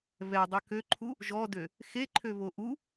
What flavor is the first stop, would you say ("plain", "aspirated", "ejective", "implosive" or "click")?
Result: plain